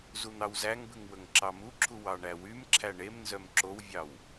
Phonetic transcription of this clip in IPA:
zun̪ɑwzæŋbʉŋ wɵŋǁɑmuǁʰu wɑɳæwymǁʰæ ɳemnzœm ǁowvʲɑw

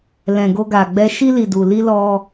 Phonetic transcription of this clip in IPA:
lɛ̃˨ɡo˧ɡa˨ɡ͡bɛ˧ ʃi˧li˨du˨ li˧lɔ˧

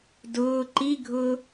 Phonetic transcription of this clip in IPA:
dʊː ǃiɡʱʊː

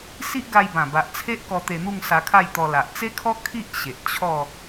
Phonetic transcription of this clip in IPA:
si˦ʔɡa˧jbã˨˩ ba˨ʔt͡sʰe˦ʔkɔ˧t̪e˧ n̪u˥˧ŋsa˧kʰa˥˧jt̪ɔ˧ la˨ʔt͡se˦kʰɔ˦ kʰi˦ʔ ɕe˨ʔ t͡ɕʰɔ˥˧

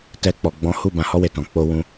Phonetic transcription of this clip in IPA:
tɛ˧k͡pɔ˨ ɡ͡bɔ̃˨˦hu˦˨ bã˧hɔ˦we˧tɔ̃˨ k͡po˧ wũ˧

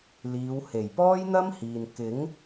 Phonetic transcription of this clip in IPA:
liː˨˧whe˨˩j pɔː˥jn̪ɐ˥mhiː˨n kɪ˨˥ŋ

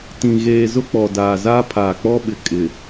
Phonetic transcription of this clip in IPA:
tĩ˨ɣeː˨ zʊ˦k͡pɔ˨daː˨ zaː˦pʰaː˨k͡pɔ˦ɓɪ˨ kʼɪ˨

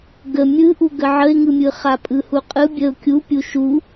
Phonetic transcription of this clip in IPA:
ɡə mʲɯʔu ɡəʕəɪ̯ŋɯmʲɯ χapʼɯhuqʼɯ bʲəʊ̯ kʲu pʲuʃu

